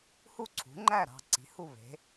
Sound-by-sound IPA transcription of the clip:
h u˥˩ ǀʰ ṳ˩˥ ŋ͡ǃ æ˥˩ ɾ ɑ̤˥˩ ǀ i̤˩˥ h u˥˩ β e̤˩˥

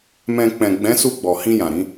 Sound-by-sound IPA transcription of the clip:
m ɛ̃˧ k͡p ɛ̃˨ ɡ͡b ɛ̃˨˦ s u˧ ɡ͡b ɔ˨ h ĩ˧ j ã˨ ɾ ĩ˨˦

